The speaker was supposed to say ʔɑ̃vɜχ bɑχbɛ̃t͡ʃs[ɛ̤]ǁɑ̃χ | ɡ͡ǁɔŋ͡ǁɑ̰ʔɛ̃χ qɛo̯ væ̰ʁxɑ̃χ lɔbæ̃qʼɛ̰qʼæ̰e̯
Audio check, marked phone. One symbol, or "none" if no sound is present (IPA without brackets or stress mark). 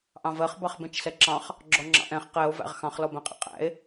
ɛ